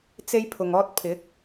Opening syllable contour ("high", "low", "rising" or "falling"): high